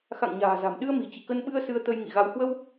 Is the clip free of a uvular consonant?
yes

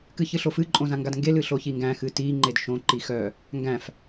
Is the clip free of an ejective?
no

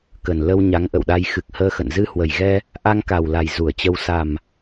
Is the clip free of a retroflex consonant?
yes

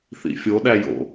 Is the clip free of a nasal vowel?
yes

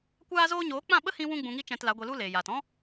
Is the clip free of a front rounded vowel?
yes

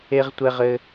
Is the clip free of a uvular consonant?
no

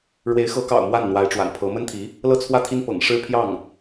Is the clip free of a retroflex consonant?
no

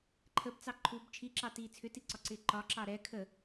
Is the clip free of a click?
no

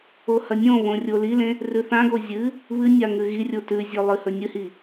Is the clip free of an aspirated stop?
yes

